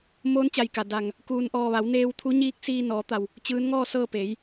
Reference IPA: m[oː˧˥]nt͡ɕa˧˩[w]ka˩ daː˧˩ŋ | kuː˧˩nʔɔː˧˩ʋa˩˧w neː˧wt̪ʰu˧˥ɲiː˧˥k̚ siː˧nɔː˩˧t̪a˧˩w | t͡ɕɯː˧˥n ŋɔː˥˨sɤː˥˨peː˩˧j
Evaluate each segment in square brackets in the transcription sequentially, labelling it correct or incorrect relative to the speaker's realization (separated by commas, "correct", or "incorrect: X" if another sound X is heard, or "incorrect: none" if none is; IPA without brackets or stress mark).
correct, incorrect: j